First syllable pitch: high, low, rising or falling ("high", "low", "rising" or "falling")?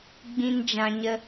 high